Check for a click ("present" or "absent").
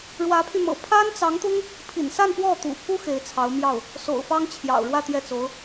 absent